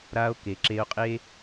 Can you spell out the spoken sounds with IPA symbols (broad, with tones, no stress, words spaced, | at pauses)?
ɾa˧o̯ke˨ǁe˧o̯qʼe˦